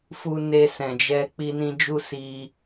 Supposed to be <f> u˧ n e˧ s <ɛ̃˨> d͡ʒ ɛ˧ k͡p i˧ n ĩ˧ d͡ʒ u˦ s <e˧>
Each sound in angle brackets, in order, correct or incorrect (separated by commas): correct, correct, incorrect